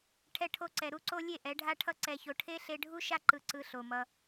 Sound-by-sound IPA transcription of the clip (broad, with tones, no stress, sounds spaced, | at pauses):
ʈʰ ɛ˧ ʈʰ o˧ ǀ ɛ˨ ɾ u˦ ǀ o˦ lʲ e˦˨ ʔ ɛ˨˦ ɖʱ a˧ ʈʰ ʌ˧ ǀ ɛ˨ ç o˨ ʈʰ e˦ ɬ e˧ ɖʱ u˦ ʃ a˧ ǃ ɯ˨ ǀ ɯ˧ ɬ o˨ m ʌ˧